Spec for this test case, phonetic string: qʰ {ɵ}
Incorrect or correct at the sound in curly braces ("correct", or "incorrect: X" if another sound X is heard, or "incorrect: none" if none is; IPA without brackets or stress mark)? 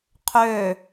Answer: incorrect: ø